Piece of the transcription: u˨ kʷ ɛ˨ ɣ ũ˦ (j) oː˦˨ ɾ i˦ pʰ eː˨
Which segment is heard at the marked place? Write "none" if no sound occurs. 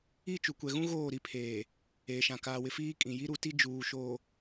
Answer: ɣ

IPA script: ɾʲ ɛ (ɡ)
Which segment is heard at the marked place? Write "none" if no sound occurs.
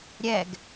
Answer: ɡ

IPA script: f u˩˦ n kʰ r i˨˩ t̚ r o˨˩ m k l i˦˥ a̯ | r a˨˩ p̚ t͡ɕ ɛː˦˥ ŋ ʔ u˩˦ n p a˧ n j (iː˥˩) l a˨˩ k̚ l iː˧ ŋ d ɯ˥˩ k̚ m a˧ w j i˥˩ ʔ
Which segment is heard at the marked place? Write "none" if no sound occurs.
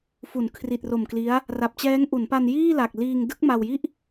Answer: iː˥˩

